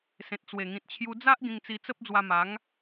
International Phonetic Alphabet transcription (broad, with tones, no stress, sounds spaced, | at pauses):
s ẽ˨ t̚ t͡s w e˨˩ ŋ ĩ˨ t̚ t͡ɕʰ j u˧ d͡z a˦ ʔ ɡ ĩ˧ ŋ t͡s i˧ t͡s ə˦ p̚ d͡z w a˧ m a˨˦ ŋ